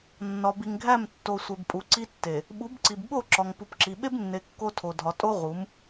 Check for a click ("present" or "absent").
present